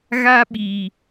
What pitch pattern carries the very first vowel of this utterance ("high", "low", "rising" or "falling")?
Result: high